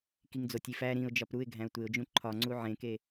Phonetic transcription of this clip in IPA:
k i ŋ d͡z o tʲ i f æ ɾ ĩ ʊ̯ d͡ʒ ɒ p ɾ u ɪ̯ ɡʱ æ̃ ʊ̯ tʷ e ʊ̯ d͡ʒ ũ ǃʰ ɒ ŋ͡ǀ u ʕ ẽ k e

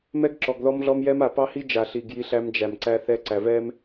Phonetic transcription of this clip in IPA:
m ɛ˦ ɡ ǁ ɔ˨ ɡ ð ɔ˦ m ɮ ɔ˦ m j ɛ˦ m a˨ p ɑ˦ h i˦ d͡ʒ a˨ ɬ i˨ ɡ j i˦ ɬ æ˦ m d͡ʒ æ˨ m ǀ æ˦ θ ɛ˦ ǀ æ˨ v ɛ˦ m

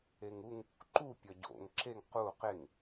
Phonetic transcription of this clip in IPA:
e ŋ u ŋ | ǃ u pʲ ɒ ɟ o̰ ŋ ǁ e ŋ q u q e ŋ

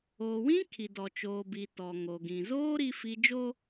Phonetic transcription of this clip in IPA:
oː˨ w ĩ˦ kʰ i˨ d ɔ˨ t͡ʃ oː˨ b i˨ t ɔ˨ ŋ o˨ ɡ ĩ˨ z oː˦ ɾ i˦ f i˦ d͡ʒ oː˦

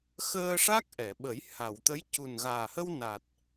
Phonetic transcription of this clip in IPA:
x əː˧ ʂ a˦˥ k̚ ʔ ɛ˨˩˨ ɓ ə˨˩˦ j h a˨˩˨ w t̪ ə˧˥ j c u˨˩ n ɣ aː˨˩ h ə˧ w n a˨˩ t̚

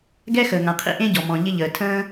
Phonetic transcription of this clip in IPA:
ɡ ɛ˥ x əː˩ ŋ ã˩ qʰ ḭ˥ ʔ ẽ˥ ɟ ɔ˩ m ɔ̃˩ ʎ ɪ˥ ʎ əː˩ tʰ ə̃ː˥

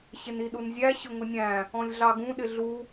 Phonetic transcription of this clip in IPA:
ɕ ɪ n i ɗ u n zʲ æ ɕ ʊ ŋ ʊ nʲ æ̃ | ɔ̃ lʲ ɮ ɑ ɡ ũ ɗ ɪ ɮ u

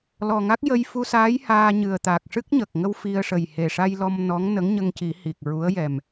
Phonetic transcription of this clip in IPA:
l ɔ˨˩ ŋ a˦˥ k̚ j ə˧ j f u˧ s aː˧˥ j h aː˧ ɲ ɨ˨˩ ə̯ t̪ a˨˩ k̚ ʂ ɨ˦˥ k̚ ɲ ə˨˩ k̚ ŋ ə˧ w f i˧ ə̯ ʂ ə˨˩ j h e˨˩ ʂ a˧ j l ɔ˧ m n ɔ˧˥ ŋ n ə˧˥ ŋ ɲ ə˧ ŋ c i˨˩˦ h i˨˩ k̚ ɹ u˧˥ ə̯ j ɛ˨˩ m

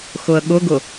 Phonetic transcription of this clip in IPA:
x ʊ ə̯ ɠ ʊ ɡ ʊ

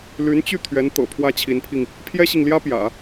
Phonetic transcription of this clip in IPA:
l y˧˥ n t͡ɕ y˥˩ t̪ʰ ɥ ɛ˧˥ n t̪ ɤ̰˨˩ pʰ w ä˥ t͡ɕʰ i˧˥ n pʰ i˧ ŋ | pʰ j ɛ˥ ɕ i˨ ŋ l j ä˥ p j ä̰˨˩˦

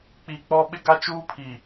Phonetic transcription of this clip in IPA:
k͡p i˨ k͡p ɔ˦ ɓ ɪ˦ ɡ a˦ t͡ʃ uː˦ pʰ i˨

